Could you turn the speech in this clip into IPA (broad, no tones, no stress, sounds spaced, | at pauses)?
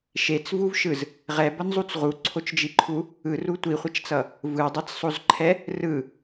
ʃ e t͡s v u v ʃ ɯ z | ʁ ɛ b ʌ n zˤ u t͡s ʁ u ǀʰ o t͡ʃ d͡ʒ i ǃʰ u | ɯ r u tʷ i χʷ ʌ t͡ʃ t͡s ʌ | v ɯ dˤ a t͡s sˤ o z ǃʰ ɛ | r ɯ